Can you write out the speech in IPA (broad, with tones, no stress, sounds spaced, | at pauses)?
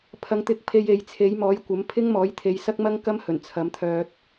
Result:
pʰ ɐ˨ ŋ t̪ ɪ˨˥ k̚ pʰ e˧ j e˨ j t͡sʰ e˨˥ j m ɔː˨˥ j kʷ ɐ˨˥ m pʰ ɪ˥ ŋ m ɔː˨˥ j t̪ʰ e˨˧ j s ɐ˥ k̚ m ɐ˥ ŋ k ɐ˥ m h ɵ˨˩ n t͡sʰ ɐ˨˥ m t̪ʰ œː˧ t̚